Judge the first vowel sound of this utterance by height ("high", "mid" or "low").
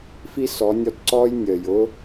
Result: high